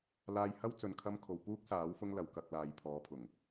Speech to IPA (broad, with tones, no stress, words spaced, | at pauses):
laː˧jhɐ˥w t͡sɵ˨nkʰɐ˧m kʰo˨wpuː˥k̚saː˨˥w fʊ˥ŋlɐ˨˧w kɐ˧k̚laː˨˧j pʰɔː˨˧pʰʊ˨˩ŋ